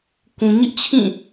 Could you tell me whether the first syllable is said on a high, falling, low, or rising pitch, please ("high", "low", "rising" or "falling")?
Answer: low